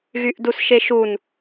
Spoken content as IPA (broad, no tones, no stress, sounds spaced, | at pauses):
ɣ y ʔ d u s ʃ e ʃ u n